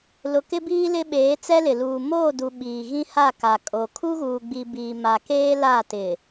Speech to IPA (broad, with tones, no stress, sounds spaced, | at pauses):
l ʊ˨ k ɪ˦ b iː˦ l ɪ˦ ɓ eː˨˦ t͡s ɛ˦ l ɪ˨ l uː˨ m oː˦˨ d u˨ ɓ iː˨ ɣ ĩ˦ h a˦˨ k a˨ kʼ o˨ kʰ u˦ ɣ uː˨ ɡ͡b i˨ b iː˨ m a˨ k eː˦ l a˦˨ t ɪ˨